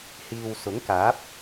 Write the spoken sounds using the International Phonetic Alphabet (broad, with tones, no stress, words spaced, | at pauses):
hiː˨w sʊ˨˥ŋkaː˨˥p̚